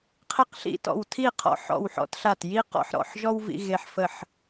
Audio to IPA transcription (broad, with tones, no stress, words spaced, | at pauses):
qʰe˦qɬḭ˦˨tɔ̰˦˨w tʰi˦˨qʰɔ̰˦˨ ħɔ̰˦˨wħɔ̰˦tɬa˦˨t ji˦ qɔ̰˦ħ ɾɔ̰˦˨ħʒɔ˦w vḭ˦ɣe˦ħ fə˦˨ħ